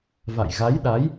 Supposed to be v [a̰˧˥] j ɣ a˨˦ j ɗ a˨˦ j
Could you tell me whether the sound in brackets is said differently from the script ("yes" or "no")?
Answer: yes